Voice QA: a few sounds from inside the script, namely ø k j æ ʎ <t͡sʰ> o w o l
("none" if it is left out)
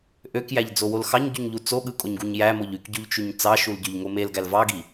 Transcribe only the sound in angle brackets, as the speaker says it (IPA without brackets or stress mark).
d͡z